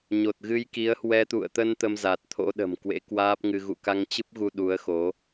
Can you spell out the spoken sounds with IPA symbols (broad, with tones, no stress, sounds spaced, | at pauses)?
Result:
ɲ o˨˩ t̚ ɣ ɨ˧ j k i˨˦ ə̯ h w ɛ˧ t̪ ṵ˧˨ ə̯ t̪ ə˧ n t̪ ə˧ m z a˨˩ t̚ t̪ʰ o̰˧˥ ɗ ə̤˨˩ m k w ḛ˧˥ k w aː˦˥ p̚ ŋ ɨ˧ ɣ ṵ˧˨ k a˧ ŋ t͡ɕ ɨ˦˥ p̚ ɣ u˧ ɗ u˨˦ ə̯ x o˨˦